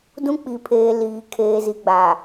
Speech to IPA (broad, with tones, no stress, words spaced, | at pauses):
dũ˦k͡pi˨pʰeː˨ liː˨ kʰeː˨zi˨ɡ͡ba˨